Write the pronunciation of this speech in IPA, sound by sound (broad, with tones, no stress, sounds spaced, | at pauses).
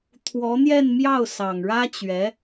t̪ʰ w ɔ˧˥ n̪ j ɛ˥˧ n m j ɑ˥˩ ʊ̯ s ɑ˨˩ ŋ ɻ ä˥ t͡ɕ ɥ ɛ˧˥